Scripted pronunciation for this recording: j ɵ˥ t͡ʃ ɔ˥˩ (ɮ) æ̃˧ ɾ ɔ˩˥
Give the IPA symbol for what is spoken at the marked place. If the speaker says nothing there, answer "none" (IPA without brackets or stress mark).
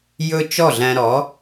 ɮ